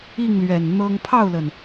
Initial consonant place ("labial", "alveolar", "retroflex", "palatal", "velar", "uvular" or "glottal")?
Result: velar